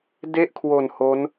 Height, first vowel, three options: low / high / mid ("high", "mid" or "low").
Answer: mid